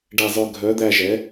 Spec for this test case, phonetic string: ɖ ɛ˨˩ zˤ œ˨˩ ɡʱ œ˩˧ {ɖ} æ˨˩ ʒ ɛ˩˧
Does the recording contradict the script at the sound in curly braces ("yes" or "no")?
yes